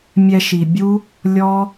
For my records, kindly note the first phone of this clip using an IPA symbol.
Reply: mʲ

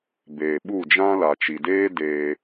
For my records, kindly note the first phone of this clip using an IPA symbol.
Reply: b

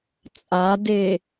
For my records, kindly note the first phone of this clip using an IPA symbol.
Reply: t͡sʼ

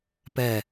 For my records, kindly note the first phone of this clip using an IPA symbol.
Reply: p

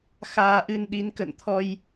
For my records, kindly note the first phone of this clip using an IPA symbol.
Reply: x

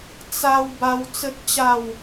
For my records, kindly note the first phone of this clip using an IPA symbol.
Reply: t͡s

